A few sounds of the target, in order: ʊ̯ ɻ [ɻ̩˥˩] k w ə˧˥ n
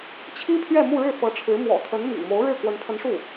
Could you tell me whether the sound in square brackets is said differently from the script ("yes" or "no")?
no